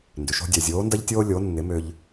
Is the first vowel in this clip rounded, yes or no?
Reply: yes